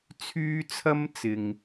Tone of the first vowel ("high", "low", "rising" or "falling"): high